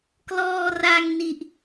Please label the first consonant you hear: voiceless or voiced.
voiceless